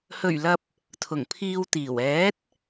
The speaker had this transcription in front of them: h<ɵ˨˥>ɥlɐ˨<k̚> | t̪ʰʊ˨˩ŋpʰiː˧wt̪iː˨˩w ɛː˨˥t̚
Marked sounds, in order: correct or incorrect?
incorrect: ɵ˨˩, incorrect: p̚

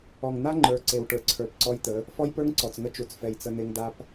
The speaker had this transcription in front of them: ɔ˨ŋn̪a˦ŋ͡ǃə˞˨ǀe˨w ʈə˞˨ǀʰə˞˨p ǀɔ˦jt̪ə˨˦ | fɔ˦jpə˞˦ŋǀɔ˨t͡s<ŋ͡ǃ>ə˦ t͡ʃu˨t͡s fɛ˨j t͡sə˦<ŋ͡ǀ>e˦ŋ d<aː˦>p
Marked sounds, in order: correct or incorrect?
incorrect: ŋ, incorrect: n̪, incorrect: a˦

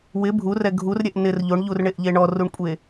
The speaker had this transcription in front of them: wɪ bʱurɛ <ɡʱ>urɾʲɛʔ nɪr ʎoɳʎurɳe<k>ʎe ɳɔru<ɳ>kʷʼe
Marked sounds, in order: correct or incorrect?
correct, incorrect: ʔ, correct

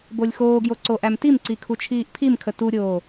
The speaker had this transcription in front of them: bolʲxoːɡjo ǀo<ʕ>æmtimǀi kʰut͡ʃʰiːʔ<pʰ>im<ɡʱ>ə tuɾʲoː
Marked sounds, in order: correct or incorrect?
incorrect: ʔ, correct, incorrect: kʰ

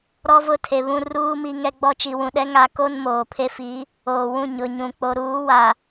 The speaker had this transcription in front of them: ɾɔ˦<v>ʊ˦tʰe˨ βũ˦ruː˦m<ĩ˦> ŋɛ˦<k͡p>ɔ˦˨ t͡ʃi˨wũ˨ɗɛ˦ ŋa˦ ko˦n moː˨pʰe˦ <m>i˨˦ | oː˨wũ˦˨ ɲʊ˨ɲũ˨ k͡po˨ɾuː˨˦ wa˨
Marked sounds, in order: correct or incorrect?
correct, incorrect: i˦, incorrect: ɡ͡b, incorrect: f

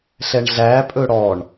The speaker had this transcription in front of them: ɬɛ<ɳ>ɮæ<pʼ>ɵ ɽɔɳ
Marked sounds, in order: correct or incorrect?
correct, correct

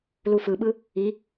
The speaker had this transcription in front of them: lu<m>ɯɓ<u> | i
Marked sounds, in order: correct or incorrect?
incorrect: f, incorrect: ɯ

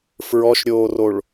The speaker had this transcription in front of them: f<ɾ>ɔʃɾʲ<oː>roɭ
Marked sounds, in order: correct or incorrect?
incorrect: ɹ, correct

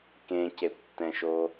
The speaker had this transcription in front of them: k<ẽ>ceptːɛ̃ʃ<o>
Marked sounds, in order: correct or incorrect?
correct, correct

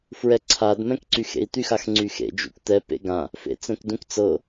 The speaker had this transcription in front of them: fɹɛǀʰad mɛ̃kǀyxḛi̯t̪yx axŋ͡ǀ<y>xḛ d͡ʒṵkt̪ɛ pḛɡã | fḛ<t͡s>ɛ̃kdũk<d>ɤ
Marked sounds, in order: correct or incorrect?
correct, correct, incorrect: t͡s

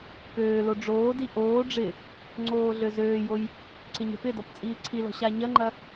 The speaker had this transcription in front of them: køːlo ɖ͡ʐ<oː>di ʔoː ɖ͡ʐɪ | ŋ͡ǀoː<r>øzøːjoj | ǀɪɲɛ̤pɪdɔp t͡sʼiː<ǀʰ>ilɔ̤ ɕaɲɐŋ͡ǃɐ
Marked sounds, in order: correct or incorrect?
correct, incorrect: ɮ, correct

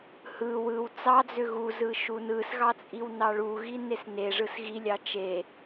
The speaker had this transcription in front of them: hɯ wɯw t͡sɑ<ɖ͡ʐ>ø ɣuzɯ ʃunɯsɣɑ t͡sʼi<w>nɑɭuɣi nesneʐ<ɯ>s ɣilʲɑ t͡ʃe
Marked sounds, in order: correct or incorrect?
incorrect: d͡z, correct, correct

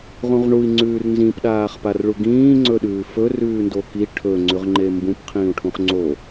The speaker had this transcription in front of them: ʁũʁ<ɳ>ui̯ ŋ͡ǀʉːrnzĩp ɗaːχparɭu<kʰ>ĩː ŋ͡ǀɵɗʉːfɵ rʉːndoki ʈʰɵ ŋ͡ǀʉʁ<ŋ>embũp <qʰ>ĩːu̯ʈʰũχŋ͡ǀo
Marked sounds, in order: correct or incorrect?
correct, incorrect: ɡ, incorrect: ŋ͡ǃ, correct

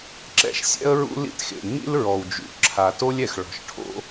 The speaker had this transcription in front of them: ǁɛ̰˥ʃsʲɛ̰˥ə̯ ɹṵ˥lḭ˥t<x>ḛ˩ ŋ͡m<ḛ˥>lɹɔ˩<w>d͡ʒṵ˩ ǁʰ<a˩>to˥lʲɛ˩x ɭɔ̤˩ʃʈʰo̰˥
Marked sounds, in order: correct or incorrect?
correct, incorrect: ḭ˥, correct, correct

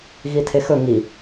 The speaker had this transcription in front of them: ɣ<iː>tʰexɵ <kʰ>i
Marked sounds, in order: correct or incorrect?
incorrect: i, incorrect: ŋ

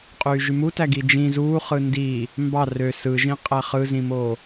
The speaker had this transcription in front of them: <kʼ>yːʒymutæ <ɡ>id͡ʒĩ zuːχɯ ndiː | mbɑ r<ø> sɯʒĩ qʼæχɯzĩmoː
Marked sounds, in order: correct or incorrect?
incorrect: qʼ, correct, correct

